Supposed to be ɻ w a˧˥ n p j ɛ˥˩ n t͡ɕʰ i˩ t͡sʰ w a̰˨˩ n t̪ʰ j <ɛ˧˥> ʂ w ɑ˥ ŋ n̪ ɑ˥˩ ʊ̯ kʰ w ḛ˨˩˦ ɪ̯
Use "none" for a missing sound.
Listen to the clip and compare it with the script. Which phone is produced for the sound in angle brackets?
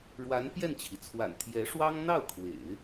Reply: ɛ˧˥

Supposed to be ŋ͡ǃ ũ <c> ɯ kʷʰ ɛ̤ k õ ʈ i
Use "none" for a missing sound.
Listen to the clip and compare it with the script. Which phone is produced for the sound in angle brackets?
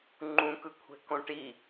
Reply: k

